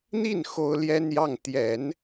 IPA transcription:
n̪ i˥˩ n x o˥ ʊ̯ l j ɛ˥ n j ɑ˥˩ ŋ t̪ j ɛ˨˩˦ n

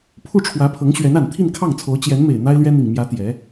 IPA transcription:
pʰ u˥˩ ʈ͡ʂʰ w ä˧˥ pʰ ɤ˧˥ ŋ ɕ ɥ ɛ˧˥ n a˨˩ n t̪ʰ i˥˧ n kʰ ɑ˥˩ ŋ t͡sʰ o˧˥ ʊ̯ t͡ɕ j ɛ˧˥ n m e˨˩ ɪ̯ n̪ a˥ ɪ̯ l ɥ ɛ˥ n̪ i˨˩ ŋ m j ä˧˥ t̪ j ɛ˧˥

